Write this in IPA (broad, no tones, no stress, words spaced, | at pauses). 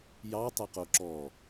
jɑtˤəqo ǁɔ